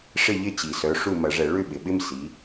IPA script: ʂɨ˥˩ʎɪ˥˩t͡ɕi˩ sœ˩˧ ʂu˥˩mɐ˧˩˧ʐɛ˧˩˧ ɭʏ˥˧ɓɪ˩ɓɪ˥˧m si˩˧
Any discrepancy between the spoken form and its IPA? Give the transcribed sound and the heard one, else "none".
ɨ˥˩ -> ɪ˥˩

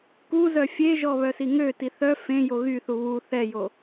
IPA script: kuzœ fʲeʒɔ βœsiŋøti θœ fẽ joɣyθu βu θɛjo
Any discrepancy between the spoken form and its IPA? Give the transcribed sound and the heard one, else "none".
none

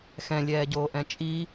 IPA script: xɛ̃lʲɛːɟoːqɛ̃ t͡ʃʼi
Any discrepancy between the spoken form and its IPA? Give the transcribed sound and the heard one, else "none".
q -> ʔ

